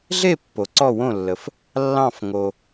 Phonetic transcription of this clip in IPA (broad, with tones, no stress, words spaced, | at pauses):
ɮe˦˨ pːo˨ǀɔ˦˨wõ˦˨lːə˨f | lːɑ̃˦˨fŋo˨